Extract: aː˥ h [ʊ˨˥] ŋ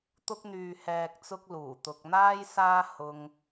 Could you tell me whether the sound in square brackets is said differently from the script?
yes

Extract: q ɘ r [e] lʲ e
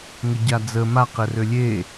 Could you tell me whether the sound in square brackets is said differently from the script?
yes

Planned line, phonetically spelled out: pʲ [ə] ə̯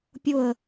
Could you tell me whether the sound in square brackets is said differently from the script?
yes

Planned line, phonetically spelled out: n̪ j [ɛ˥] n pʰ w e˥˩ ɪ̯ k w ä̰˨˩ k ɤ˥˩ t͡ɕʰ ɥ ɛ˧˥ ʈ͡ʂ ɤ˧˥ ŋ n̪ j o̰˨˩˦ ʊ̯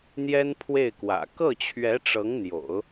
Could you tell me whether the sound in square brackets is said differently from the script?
no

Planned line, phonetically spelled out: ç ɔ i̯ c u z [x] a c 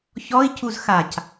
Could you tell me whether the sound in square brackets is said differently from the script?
no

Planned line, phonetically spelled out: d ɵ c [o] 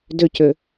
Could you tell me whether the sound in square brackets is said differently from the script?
yes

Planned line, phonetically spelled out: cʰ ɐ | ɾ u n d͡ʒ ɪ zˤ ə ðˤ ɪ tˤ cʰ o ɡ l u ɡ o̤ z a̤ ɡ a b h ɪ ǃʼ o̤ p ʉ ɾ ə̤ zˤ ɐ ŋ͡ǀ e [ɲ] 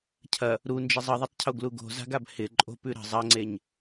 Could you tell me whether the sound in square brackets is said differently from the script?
no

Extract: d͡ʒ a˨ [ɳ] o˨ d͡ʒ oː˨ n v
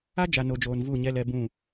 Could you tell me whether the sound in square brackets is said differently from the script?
yes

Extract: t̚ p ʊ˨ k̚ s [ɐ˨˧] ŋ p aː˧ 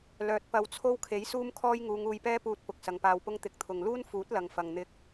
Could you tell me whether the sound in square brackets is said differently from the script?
no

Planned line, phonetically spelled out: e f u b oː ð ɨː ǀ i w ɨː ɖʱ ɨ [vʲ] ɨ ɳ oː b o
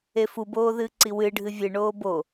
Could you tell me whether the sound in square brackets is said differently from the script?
no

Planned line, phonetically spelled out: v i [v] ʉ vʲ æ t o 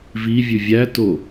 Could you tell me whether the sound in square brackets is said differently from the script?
yes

